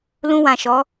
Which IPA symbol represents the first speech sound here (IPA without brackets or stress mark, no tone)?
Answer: l